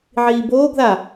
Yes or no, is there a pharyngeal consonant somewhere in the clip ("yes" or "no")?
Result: yes